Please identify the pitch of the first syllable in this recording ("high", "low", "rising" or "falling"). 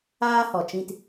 high